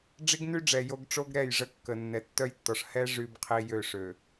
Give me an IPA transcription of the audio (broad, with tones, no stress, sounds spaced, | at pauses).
ɖ͡ʐ i˦ ɡ n y˦ ɖ͡ʐ ɛ˨ j o˦ ɡ ʈ͡ʂ o˦ ɡ ɾ ɛ˦˨ j ʐ ə˦ kː ə˨ nː ɛ˨ tː œ˦ j tː ɔ˨ ʂ h ɛ˦ ʐ y˦ b qʰ i˦ j ø˦˨ ʂ ø˨